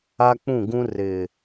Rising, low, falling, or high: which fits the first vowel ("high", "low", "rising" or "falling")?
high